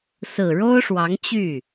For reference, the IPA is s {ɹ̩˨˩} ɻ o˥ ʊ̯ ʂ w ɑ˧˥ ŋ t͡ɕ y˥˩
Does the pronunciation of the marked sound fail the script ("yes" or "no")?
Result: no